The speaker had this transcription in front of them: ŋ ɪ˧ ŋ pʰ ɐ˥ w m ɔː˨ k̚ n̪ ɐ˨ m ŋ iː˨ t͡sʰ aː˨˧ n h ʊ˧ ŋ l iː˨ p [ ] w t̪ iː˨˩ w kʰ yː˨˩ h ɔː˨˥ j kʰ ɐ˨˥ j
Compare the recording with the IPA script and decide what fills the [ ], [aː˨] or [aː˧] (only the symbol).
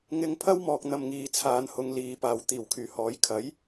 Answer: aː˨